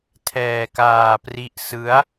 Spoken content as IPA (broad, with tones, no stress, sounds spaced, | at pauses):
tʰ ɛː˧ k aː˧ p r i˦˥ ʔ s ɯ˦˥ a̯